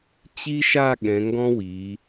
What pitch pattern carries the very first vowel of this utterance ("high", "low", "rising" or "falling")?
high